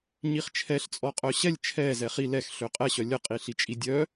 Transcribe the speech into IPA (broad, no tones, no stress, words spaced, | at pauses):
ɲiχt͡ʃʰɛɬt͡sʼɔ qʼœɕɛlʲ t͡ʃʰɛzɛ χi lɛx ɬøqʼɛɕœ lʲəqʼiɬit͡ʃʼi dʲœ